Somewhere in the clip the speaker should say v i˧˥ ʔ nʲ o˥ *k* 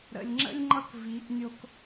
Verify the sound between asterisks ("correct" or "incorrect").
correct